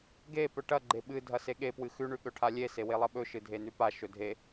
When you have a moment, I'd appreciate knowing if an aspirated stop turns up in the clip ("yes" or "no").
yes